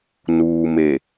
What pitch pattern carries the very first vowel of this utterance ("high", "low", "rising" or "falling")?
low